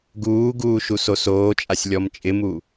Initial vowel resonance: oral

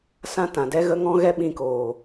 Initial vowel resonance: nasal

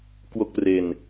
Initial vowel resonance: oral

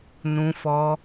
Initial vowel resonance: nasal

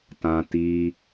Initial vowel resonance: nasal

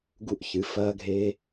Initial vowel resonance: oral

